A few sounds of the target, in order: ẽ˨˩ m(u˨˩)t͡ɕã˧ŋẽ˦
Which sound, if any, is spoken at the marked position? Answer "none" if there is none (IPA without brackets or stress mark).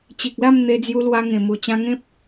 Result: u˨˩